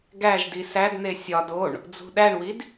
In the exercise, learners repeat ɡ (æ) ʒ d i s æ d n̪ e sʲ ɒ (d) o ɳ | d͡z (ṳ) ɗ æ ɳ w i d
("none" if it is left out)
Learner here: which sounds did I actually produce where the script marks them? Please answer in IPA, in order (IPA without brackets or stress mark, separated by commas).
æ, d, ṳ